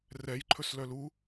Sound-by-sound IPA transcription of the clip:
rɛjǃʰɵs lœlu

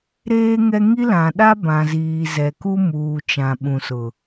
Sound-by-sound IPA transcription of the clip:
ɾeː˦ŋɛ˦ ŋi˦lã˨ ɗa˦bã˨ziː˨ zɛ˨ku˦ muː˨ t͡ʃã˨ ɓũ˨sʊ˨

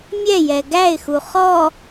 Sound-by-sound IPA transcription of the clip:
mʲɛjɛ ɡæɪ̯xu χɔ

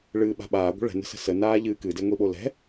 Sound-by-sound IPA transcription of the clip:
ɭɨːɓa̤ɓaː ɡʷə̤ɭɛ̤ nə̤sə̤sə naːʎɨːkɨ deŋʷiɓolɛ̤

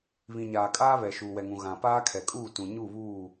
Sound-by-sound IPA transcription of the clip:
βĩ˨ɲaː˨kʼaː˦ βɛ˨ ʃuː˨wɛ˨ŋũ˨ ɣã˨ paː˦kʰɛ˨kʼuː˦˨tũ˨ ɲu˦˨βuː˦˨

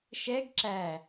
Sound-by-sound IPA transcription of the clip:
ʃɛɡ ǁæ

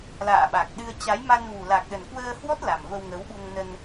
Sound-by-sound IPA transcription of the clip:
la̰ː˧˨ɓa˨˩k̚ɗɨ˧ə̯ t͡ɕa˨˦jma˧nvu˨˩ la˨˩k̚ɗə˨˩nkwəː˧hwɔ˦˥t̚ la˨˩mvə˧wŋə˨˦wɓu˧ŋ nə˧n

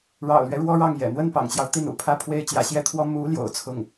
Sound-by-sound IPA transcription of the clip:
ɻɑ̰˨˩ʊ̯lɥɛ˦ ɻwɔ˥ɻɑ˥˩ŋjɛ̰˨˩ n̪wə˥˩npɑ̰˨˩ŋt͡ɕjɑ˦ʊ̯ t̪i˥˩nṵ˨˩pʰä˥˩pʰwe˥ɪ̯ t͡ɕjä̰˨˩ɕjɛ˥˩t̪ʰwɔ˥ mu˧˥ ljo̰˨˩ʊ̯t͡sʰʊ˥˩ŋ

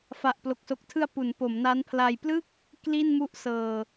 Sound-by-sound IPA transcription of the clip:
fa˨˩ʔ plo˨˩k̚so˨˩k̚tʰɯ˧a̯ pu˩˦npo˩˦mna˦˥npʰla˧j plɯ˥˩k̚ | kli˥˩nmu˦˥ʔsɤː˨˩

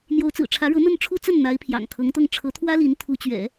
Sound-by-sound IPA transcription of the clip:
n̪jo˧˥ʊ̯t͡sɹ̩˨˩ʈ͡ʂʰä˧˥ɻɤ˧˥ n̪ə˥˩nʈ͡ʂʰu˥t͡sə˥˩n n̪a˧˥ɪ̯pʰjɑ̰˨˩ŋkʰɤ˧˥ŋt̪ɤ˥˩ŋ ʈ͡ʂʰɤ˧˥t̪ʰwä˥li˧˥n t̪ʰu˧˥ t͡ɕɥɛ̰˨˩˦

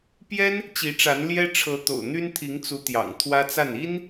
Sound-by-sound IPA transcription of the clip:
pjɛ˥n | t͡ɕi˧˥ʈ͡ʂa˧˥n ljɛ˥ʈ͡ʂʰɤ˧˥ t̪o̰˨˩ʊ̯n̪y˥nt̪ʰi˧˥ŋt͡su˧˥ t̪jɑ̰˨˩ŋt̪ʰwä˥t͡sa˥˩n i˥n

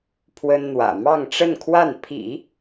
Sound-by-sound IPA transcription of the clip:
pʰwə˥nn̪wä̰˨˩ mɑ˥˧ŋʈ͡ʂə˥˧nkʰwa˥˩n pʰḭ˨˩˦

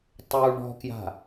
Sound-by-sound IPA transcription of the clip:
tˤu ɳɔ̤kja̤

